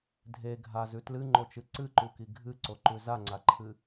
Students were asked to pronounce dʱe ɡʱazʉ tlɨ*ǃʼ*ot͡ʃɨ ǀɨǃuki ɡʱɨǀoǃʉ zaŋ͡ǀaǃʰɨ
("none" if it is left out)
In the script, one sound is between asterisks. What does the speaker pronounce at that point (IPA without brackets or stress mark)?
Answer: ŋ͡ǃ